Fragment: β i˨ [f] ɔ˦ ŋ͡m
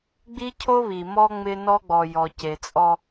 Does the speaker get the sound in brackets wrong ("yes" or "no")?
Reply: yes